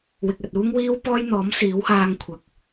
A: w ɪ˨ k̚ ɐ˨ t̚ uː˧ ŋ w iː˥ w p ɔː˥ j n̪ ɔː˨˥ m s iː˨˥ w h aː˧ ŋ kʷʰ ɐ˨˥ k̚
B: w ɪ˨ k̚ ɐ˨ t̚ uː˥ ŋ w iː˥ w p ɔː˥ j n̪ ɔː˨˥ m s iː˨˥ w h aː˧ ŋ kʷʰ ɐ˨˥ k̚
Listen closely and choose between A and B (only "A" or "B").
B